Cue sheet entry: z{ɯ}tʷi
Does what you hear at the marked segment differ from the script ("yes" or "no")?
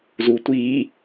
yes